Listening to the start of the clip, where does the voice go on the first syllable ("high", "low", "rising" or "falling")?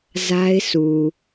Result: high